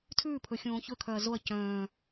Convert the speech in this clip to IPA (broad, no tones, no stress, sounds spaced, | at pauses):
tʰ ʉː pʰ ɵ xʲ õː ç ɵ kʰ œ ɐ̯ z o ɐ̯ c œ̃ː